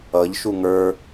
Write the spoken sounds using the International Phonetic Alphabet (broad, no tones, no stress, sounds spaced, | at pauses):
ʌ ʎ ʃ u ŋ ə˞